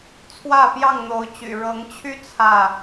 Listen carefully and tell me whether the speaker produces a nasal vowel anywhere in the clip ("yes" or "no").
no